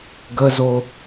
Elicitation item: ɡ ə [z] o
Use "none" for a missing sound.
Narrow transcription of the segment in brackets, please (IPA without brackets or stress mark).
z